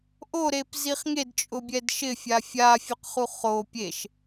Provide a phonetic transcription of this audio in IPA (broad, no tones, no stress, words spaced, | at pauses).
ʔoɾepziχ ŋedt͡ʃʼʊbʲɛd ʃɪfʲa fʲafʲʊqχu χo pʲeʃ